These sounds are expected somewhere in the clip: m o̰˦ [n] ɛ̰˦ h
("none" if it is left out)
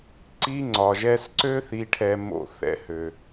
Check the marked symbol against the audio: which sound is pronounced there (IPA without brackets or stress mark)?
θ